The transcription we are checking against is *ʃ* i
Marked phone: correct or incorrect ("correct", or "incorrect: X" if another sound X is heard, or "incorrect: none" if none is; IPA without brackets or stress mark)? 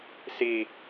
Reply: incorrect: s